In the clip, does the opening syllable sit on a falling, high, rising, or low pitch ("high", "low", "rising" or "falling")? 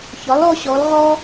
rising